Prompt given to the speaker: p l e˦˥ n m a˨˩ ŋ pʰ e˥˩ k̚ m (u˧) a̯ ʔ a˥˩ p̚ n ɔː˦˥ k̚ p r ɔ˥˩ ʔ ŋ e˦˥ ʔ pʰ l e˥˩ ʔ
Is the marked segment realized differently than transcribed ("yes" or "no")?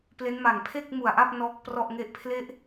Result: yes